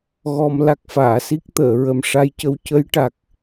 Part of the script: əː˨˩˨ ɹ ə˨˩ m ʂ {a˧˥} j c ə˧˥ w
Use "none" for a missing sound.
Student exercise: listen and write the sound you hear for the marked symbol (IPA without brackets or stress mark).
a˧˥